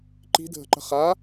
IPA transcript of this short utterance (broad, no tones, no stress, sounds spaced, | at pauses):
ǃ i̤ dʱ ə̤ ǃ ə̤ χ a